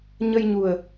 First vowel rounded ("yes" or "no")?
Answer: no